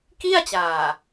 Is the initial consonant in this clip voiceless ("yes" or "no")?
yes